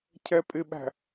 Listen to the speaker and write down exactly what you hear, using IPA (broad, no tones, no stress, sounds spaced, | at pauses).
cʰ ɛ pʼ ɪ ɓ æ̤